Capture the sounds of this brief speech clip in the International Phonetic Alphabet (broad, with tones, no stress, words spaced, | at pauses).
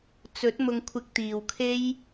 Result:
t͡sɵ˨˥t̚mʊ˧ŋkʷʰɪ˧k̚t̪iː˨w kʰe˥j